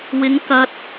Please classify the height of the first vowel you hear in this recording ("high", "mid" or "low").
high